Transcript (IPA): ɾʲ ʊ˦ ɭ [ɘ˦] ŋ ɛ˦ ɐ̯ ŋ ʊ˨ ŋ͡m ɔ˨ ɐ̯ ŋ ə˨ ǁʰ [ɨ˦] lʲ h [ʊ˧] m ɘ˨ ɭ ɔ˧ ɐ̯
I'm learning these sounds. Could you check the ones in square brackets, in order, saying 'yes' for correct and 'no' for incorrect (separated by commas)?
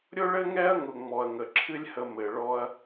yes, yes, no